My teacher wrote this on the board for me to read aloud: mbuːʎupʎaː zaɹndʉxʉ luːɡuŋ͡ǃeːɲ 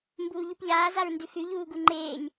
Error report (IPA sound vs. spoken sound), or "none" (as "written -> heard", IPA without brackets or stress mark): l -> ʎ